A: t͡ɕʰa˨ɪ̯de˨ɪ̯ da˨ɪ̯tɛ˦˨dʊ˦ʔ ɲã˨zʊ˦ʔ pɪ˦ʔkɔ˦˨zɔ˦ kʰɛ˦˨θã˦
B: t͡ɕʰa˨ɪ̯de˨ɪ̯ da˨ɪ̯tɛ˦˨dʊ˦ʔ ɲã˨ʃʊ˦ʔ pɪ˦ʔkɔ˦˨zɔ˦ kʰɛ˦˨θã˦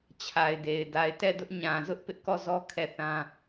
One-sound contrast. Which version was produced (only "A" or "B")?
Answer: A